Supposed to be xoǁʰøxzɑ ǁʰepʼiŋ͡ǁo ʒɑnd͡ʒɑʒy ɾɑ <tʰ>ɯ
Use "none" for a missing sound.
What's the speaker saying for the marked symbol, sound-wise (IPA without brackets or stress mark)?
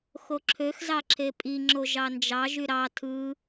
tʰ